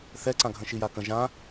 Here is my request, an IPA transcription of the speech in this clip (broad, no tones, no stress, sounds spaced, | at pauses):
θ ɛ ǀ ã ɡʱ ə̃ ʃ i j a k ə̃ ʒ ã